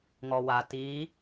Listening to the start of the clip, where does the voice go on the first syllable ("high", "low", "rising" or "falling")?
low